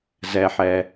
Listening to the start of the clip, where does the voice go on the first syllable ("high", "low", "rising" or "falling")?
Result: low